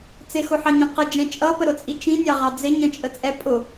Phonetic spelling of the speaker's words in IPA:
t͡s ɪ x ʊ ħ ɑ ɲ ĩ q ə d͡ʒ ɛ̃ t͡ʃʼ ʌ p ə ɾ ʊ t͡sʼ i t͡ʃ ĩ nʲ ɑ ʁ ɑ d͡z ɪ ɲ ə̃ t͡ʃʼ ə t͡sʼ ɛ pʼ ʊ

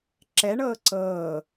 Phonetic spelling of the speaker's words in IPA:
ǁ ɛ ɳ ɤː ǀ ɤː

